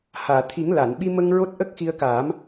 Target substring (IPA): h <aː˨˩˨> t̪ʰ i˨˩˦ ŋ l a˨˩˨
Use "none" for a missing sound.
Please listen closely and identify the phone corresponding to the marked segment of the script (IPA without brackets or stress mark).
aː˨˩˨